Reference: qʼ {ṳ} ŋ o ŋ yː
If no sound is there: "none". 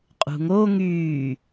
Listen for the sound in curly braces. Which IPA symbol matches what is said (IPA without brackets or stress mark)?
ṳ